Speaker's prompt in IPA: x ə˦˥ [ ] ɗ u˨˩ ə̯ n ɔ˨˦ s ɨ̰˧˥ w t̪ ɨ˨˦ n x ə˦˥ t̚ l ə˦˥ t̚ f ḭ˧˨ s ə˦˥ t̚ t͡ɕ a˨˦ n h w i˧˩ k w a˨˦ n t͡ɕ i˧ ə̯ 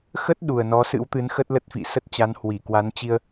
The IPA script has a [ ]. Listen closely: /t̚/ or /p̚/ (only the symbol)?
t̚